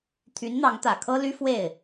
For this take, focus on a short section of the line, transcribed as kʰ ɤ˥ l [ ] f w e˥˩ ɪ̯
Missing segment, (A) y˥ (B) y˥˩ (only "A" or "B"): A